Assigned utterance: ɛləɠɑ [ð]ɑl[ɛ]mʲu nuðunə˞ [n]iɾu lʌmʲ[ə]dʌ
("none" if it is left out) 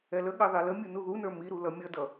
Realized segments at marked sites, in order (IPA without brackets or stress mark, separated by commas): ð, ə, m, ʌ